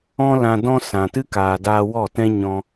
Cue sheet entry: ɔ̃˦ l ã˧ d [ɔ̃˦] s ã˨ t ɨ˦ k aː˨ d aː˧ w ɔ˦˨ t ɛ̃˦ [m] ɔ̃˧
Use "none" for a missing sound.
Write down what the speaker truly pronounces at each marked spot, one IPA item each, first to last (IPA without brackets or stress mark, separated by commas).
ɔ̃˦, ɲ